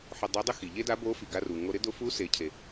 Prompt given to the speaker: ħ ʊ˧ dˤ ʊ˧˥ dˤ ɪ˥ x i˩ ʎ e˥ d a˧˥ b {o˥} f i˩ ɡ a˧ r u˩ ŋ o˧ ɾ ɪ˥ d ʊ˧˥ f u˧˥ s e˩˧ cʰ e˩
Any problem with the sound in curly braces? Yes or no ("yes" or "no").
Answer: yes